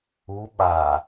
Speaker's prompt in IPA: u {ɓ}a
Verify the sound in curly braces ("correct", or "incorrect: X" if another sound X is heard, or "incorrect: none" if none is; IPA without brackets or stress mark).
correct